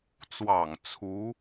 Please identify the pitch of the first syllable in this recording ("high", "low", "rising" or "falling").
low